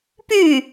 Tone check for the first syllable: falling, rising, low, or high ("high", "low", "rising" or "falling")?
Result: falling